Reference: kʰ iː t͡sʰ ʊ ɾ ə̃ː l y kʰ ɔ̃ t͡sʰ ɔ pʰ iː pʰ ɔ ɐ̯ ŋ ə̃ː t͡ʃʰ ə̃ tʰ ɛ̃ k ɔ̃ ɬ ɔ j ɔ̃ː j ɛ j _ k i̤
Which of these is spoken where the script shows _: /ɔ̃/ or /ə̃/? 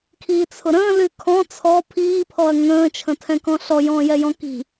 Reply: ɔ̃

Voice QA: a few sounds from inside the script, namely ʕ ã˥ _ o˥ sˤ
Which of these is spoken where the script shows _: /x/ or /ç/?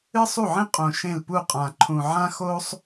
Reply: x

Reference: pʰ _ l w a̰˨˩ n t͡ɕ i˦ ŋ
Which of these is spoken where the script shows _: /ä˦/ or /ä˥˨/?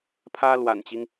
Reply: ä˦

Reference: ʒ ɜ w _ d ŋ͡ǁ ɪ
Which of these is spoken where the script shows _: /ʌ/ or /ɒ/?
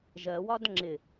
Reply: ɒ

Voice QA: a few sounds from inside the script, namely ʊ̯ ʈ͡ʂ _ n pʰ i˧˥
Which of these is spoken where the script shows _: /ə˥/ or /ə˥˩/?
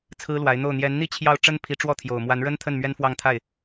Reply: ə˥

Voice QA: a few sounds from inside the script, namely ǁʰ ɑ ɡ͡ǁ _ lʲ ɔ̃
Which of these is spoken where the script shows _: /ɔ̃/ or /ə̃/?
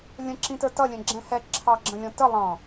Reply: ə̃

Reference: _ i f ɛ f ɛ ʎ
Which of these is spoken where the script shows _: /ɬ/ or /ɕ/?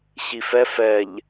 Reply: ɕ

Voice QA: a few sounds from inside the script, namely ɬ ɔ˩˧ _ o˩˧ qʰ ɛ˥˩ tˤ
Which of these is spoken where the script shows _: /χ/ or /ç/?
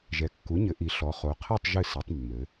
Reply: χ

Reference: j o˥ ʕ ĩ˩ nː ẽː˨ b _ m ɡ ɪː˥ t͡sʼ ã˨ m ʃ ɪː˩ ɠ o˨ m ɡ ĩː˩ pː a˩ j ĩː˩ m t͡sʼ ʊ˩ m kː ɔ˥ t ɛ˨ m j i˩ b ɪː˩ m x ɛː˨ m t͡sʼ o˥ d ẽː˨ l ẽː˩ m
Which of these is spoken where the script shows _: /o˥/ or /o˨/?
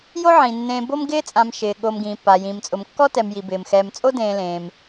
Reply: o˥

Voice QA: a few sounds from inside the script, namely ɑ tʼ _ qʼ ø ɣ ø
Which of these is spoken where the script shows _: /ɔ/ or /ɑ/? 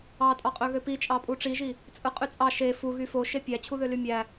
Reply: ɑ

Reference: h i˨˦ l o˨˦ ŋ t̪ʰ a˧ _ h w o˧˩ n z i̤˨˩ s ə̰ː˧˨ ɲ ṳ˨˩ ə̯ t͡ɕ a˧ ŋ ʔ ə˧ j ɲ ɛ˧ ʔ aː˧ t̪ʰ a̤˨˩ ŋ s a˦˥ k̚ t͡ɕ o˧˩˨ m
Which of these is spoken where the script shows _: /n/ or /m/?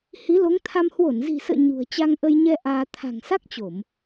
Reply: m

